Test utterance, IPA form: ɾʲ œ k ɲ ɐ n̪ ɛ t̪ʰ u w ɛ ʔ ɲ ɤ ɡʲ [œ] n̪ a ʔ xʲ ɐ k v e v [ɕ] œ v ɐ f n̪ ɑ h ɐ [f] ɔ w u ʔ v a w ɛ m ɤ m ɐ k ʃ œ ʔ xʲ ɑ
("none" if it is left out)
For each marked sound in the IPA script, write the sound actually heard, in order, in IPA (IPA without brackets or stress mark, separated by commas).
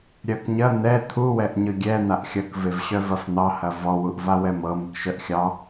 ɛ, ɕ, v